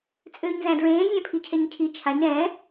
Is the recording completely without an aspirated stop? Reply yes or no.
no